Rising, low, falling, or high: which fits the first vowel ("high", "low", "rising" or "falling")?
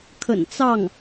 low